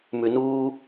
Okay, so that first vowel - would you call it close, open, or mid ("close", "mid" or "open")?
close